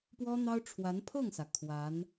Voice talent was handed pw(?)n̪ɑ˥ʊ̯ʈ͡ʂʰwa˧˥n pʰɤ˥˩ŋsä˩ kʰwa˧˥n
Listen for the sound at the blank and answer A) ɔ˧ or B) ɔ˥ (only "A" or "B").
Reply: B